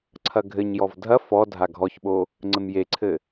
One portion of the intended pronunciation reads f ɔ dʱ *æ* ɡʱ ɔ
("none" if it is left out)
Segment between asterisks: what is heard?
a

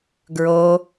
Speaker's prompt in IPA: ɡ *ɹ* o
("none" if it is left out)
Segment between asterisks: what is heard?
ɹ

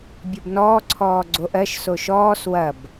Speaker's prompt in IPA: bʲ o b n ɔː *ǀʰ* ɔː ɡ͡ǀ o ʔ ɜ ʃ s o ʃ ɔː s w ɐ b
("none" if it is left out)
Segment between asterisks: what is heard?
ǀʰ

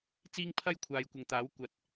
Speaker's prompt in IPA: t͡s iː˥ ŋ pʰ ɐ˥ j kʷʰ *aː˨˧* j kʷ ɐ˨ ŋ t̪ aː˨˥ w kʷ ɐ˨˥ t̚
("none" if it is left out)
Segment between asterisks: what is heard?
aː˨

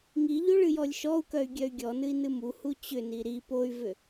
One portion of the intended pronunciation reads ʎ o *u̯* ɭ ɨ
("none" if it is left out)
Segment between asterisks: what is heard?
none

